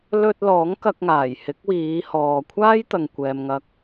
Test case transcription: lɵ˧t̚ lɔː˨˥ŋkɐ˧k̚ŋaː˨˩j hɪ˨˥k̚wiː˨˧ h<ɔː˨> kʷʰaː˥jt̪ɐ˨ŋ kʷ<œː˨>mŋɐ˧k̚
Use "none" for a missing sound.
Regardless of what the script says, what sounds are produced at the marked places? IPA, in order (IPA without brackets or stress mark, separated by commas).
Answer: ɔː˨, ɛː˨